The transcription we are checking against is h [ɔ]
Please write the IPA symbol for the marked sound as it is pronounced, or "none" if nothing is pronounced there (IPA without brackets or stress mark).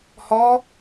ɔ